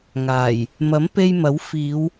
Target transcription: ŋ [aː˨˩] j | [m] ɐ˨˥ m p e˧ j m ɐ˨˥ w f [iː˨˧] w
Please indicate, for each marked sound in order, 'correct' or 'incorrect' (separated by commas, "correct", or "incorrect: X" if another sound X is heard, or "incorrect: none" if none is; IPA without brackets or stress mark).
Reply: correct, correct, correct